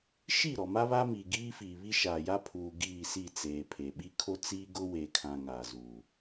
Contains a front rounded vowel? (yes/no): no